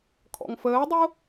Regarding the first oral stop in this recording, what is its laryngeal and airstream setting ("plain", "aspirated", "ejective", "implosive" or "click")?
aspirated